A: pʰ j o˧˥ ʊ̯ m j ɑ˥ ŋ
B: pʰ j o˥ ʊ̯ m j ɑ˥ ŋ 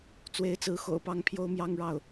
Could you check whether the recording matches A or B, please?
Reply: B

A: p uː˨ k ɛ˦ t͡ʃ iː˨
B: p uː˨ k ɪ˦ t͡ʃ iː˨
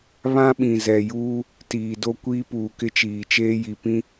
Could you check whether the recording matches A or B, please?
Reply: B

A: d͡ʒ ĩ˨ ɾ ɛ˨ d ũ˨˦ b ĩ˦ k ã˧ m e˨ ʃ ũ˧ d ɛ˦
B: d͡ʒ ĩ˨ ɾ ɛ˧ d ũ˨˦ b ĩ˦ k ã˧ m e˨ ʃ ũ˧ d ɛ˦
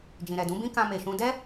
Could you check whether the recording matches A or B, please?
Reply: A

